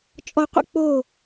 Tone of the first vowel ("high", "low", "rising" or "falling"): low